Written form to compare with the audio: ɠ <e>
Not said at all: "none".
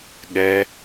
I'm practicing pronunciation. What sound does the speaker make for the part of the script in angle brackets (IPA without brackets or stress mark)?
ɛ